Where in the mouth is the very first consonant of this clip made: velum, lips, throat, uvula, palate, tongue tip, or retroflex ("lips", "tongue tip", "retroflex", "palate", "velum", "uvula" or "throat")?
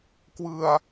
velum